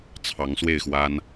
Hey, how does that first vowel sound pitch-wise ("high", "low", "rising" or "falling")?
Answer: rising